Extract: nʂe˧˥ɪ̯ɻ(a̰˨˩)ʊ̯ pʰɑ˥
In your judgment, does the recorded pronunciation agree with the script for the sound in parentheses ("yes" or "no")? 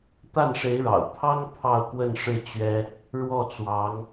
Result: no